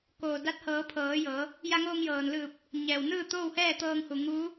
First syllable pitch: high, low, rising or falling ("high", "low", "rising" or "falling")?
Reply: low